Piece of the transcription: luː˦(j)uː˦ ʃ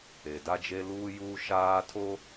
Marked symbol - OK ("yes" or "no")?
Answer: yes